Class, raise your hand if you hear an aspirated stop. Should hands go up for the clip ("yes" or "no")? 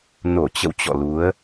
no